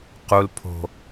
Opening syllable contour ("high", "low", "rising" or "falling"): high